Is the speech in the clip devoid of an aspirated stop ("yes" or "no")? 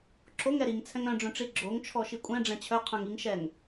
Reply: no